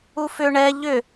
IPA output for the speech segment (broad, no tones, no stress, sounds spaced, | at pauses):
u f ʏ ɳ ɛ ʎ ʏ